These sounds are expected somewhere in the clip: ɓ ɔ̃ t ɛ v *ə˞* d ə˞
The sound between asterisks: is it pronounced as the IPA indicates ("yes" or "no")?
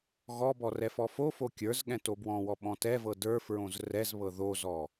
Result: no